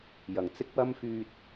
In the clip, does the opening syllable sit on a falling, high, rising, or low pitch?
low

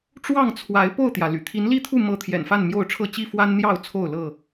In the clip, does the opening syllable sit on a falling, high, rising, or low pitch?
falling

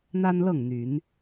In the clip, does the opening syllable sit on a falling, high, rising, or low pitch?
high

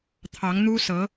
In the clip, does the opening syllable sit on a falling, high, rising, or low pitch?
rising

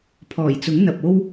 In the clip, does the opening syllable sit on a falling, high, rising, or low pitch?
low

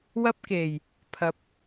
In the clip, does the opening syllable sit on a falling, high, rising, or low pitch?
high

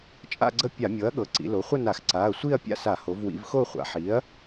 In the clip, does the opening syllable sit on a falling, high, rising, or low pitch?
falling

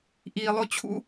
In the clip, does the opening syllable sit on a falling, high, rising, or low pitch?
low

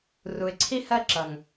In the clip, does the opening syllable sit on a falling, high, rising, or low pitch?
low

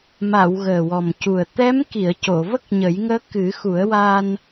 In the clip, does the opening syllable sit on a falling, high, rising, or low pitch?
low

